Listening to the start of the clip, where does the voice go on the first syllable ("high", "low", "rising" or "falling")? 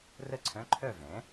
falling